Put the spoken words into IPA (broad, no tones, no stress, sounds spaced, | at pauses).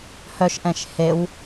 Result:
h œ ʃ ʔ ɛ̃ ʃ h e w